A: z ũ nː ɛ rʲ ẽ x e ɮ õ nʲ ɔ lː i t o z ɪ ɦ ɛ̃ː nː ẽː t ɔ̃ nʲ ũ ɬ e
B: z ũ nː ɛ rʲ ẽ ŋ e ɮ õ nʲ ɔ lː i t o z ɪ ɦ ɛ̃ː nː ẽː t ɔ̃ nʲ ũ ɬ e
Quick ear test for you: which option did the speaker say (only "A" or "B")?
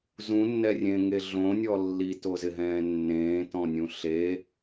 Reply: B